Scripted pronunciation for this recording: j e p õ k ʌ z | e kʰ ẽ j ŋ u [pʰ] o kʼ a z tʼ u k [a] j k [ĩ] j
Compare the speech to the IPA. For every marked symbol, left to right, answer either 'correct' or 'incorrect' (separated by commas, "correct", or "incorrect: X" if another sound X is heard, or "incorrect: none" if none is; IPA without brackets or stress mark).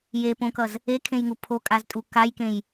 correct, correct, incorrect: ẽ